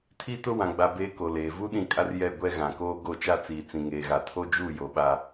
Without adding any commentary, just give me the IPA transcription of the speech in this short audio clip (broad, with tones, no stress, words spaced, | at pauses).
tʰi˦tʊ˦ wã˨ɡ͡ba˨ beː˦ ko˨leː˨ vu˦ɗĩ˨ kʼa˦rjɛ˦˨ ɡʷɛ˦ɣã˨koː˦ ɡo˦˨ t͡ʃa˦t͡siː˨ t͡sĩ˨ŋeː˨ɣa˨ tʰo˦d͡ʒu˦˨jo˨ ɓa˦